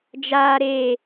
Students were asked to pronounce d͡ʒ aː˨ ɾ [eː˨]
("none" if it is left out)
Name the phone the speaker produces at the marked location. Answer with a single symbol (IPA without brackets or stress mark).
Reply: eː˨